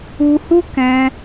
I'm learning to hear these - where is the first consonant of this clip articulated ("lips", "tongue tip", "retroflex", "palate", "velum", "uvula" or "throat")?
throat